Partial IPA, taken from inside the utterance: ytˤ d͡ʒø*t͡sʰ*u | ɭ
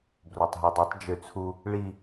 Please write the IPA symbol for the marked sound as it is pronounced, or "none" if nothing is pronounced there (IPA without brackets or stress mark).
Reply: t͡sʰ